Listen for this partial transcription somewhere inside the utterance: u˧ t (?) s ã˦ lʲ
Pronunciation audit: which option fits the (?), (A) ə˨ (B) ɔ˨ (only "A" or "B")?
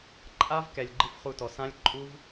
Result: B